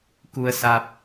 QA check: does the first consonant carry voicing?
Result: no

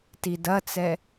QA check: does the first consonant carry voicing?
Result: no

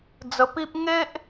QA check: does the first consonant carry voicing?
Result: yes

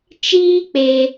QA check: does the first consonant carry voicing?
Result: no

